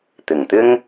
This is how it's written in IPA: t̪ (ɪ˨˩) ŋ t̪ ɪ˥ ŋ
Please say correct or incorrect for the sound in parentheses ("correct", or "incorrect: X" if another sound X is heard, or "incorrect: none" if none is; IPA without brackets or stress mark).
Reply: correct